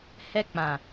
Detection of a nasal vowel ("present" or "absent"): present